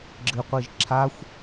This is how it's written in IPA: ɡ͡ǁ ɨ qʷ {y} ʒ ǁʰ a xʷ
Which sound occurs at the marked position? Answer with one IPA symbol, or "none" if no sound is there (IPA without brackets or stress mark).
i